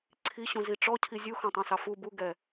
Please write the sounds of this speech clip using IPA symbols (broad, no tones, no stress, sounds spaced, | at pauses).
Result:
ǀʰ i ɕ ũ z i ʈ͡ʂ ɔ cʰ i zʲ u x ɑ̃ tˤ ɑ̃ s ɑ f u b u ɡ ɛ